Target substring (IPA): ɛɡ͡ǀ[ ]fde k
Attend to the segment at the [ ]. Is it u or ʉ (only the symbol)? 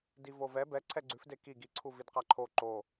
ʉ